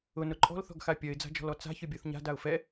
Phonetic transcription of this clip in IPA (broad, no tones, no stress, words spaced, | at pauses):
ʊnʊ ǃʼɔ̤lθɔ̤ɡxa pʲɐɪ̯d͡za̤d͡ʒɔ̤lɔ t͡sa̤çʏbʲɔθ ɲa̤daʊ̯ fɛ